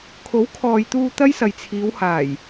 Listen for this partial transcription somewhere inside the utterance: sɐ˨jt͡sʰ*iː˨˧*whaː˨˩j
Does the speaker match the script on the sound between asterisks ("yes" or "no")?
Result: yes